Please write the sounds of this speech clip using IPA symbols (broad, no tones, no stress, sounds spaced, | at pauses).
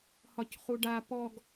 h ɒ c χ u ɖ a p ɔ ɡ